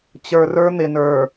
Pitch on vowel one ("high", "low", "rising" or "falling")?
low